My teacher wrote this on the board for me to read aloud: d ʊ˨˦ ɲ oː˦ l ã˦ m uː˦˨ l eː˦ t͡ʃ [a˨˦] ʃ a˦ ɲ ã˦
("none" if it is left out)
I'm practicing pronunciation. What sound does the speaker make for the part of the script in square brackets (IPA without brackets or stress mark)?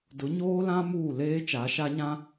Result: a˨˦